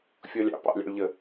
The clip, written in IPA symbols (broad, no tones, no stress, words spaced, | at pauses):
fʲɔlʲɑ̰ pɑ̰lʲɑ̰ɭʎə